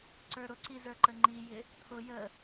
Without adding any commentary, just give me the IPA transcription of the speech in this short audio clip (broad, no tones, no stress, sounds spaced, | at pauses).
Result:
ǀ ə˞ ɾ ʊ ǀ i z ə˞ ǃ ə ŋ͡ǃ i j ɪ | t̪ʰ ʊ j ə